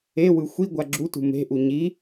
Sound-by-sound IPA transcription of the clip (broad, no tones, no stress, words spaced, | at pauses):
ewɯ xʷi ɡʷaɡ͡ǁutṳ me̤ʔu ɲi